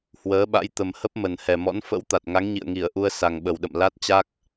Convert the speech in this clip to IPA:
h w əː˨˦ ɓ a̰˧˥ j t̪ ə˨˩ m h ə˦˥ p̚ m ə˨˩ n h ɛ˨˩ m ɔ̰˧˥ n f ə̰˧˥ w t̪ a˨˩ t̚ ŋ a˨˦ ŋ ɲ ḭ˧˨ ə̯ ŋ i˧˩ ə̯ ʔ u˧ ə̯ s a˨˩ ŋ ɓ ə˨˩ w ɗ ə̰˧˨ m l a˦˥ t̚ t͡ɕ a˦˥ k̚

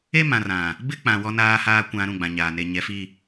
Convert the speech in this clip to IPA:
e˦ m ã˨ r ã˨ | b ɪ˦ k͡p ã˨ w ɔ˨ n aː˨ h aː˨ kʷ ã˨ ɾ ũ˦˨ ɡ͡b ã˨ ɲ aː˨ n e˨ ɲ ɛ˨ f i˨

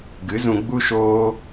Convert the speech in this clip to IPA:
ɡ ɨ˨˦ z ũ˧ ɡ͡b u˦ ʃ oː˦

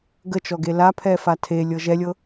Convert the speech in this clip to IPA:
ɡ ə t͡ʃ ɔ ɡ e l a pʰ ɛ f a tʰ e lʲ ɤ ʒ ɛ lʲ ɤ

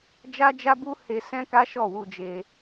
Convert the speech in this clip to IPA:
d͡ʒ a˦ d͡ʒ a˦ b u˦ h e˧ s ɛ̃˦ k a˦ ʃ ɔ˦˨ w u˧ d͡ʒ e˧

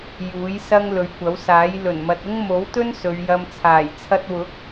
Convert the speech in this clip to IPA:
j uː˨˥ j s ɐ˥ ŋ l ɵ˨˧ ɥ kʷ ɐ˨˥ w s aː˨˥ j l ɵ˨˩ n m ɐ˨ t̚ ʊ˥ ŋ m o˨˥ w t̪ ɵ˥ n s ɵ˨˧ ɥ j ɐ˧ m t͡sʰ aː˨˩ j t͡sʰ ɐ˧ t̚ w ʊ˨˥ k̚

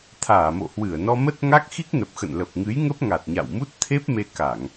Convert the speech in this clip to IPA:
t̪ʰ aː˧˩ m o̰˧˨ h w ɨ˧˩ ə̯ n ɔ˧ m ə˦˥ t̚ ŋ a˦˥ k̚ x i˦˥ k̚ n ə˨˩ p̚ x ə̰˧˨ n l ə˨˩ p̚ ŋ ɨ˨˦ j ŋ ə˦˥ p̚ ŋ a˨˩ t̚ ɲ a̰˧˨ w m u˦˥ t̚ t̪ʰ e˦˥ p̚ m e˧ k a˧˩˨ ŋ

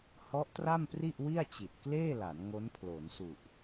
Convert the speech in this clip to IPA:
h ɔ˦˥ ʔ t r a˥˩ m p r i˥˩ ʔ w i˥˩ a̯ t͡ɕ i˨˩ t̚ k l eː˥˩ l a˩˦ n ŋ o˦˥ n pʰ l o˩˦ n s u˨˩ ʔ

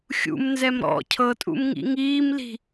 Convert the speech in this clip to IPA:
xʲ ṵ m n z ɛ m ɾ ɔ̰ cʰ ɤ tʼ ṵ m ŋ ḭ ŋ iː m l i̤

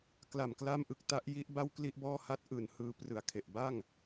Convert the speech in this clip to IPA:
k l a˨˩ m k l a˥˩ m ʔ ɯ˨˩ k̚ t a˦˥ ʔ j i˦˥ ʔ b a˥˩ w k l i˥˩ ʔ b ɔː˥˩ h a˥˩ t̚ ʔ ɯː˨˩ n h ɯː˧ p r ɯ˨˩ a̯ kʰ e˨˩ ʔ b a˥˩ ŋ

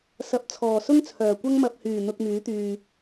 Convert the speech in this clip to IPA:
s ɐ˨˥ p̚ t͡sʰ ɔː˨˩ s ʊ˥ ŋ t͡sʰ œː˨˩ kʷ ɐ˥ ŋ m ɐ˨ p̚ h yː˨˩ n̪ ʊ˨ k̚ m yː˨˥ t̪ yː˨

